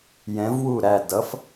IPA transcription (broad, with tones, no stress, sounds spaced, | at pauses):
j ɛ̃˩˥ v w u˥˩ ɾ æ˥˩ d ʌ˩˥ f